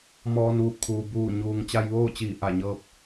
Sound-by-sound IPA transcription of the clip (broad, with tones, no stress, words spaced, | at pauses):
mɔː˧nʋu˧˩p̚kʰuː˩ buː˧˩ɲuː˩ŋ t͡ɕa˧jʋoː˥˨t͡ɕiː˧˩ ʔa˧˩ɲɤː˧p̚